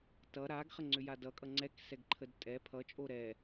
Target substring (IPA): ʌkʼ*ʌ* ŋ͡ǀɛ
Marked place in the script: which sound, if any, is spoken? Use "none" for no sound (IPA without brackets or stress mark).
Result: ʌ